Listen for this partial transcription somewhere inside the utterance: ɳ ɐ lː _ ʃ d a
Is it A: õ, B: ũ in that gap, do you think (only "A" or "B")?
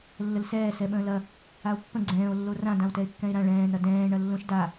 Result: A